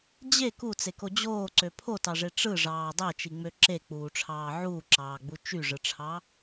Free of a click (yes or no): no